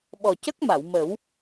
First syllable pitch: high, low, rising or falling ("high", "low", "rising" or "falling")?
low